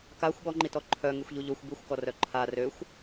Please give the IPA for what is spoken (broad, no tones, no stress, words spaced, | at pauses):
kaxʷ ɠɔŋ͡ǃitɔ ǃʰœ ŋyxʷʎuʎoxʷ byxʷkɔrœ ǃʰa røxʷ